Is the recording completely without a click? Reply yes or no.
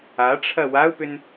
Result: yes